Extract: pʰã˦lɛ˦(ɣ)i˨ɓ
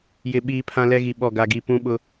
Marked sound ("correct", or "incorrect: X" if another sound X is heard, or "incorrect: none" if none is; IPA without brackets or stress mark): correct